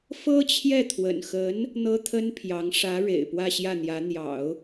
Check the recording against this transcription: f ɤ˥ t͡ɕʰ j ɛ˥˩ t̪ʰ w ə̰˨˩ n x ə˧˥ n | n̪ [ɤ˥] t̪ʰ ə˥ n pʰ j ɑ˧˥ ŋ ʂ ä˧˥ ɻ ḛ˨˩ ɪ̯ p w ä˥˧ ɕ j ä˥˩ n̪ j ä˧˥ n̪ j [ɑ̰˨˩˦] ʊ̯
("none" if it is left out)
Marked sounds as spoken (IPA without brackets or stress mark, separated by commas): ɤ˥, ɑ̰˨˩˦